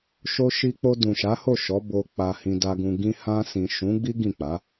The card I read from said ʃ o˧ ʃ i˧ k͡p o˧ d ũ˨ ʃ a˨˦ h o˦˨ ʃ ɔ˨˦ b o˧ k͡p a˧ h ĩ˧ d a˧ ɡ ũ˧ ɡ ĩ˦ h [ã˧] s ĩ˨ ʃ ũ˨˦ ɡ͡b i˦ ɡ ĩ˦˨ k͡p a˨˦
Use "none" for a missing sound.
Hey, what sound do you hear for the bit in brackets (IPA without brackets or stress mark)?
ã˧